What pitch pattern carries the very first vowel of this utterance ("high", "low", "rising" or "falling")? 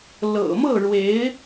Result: low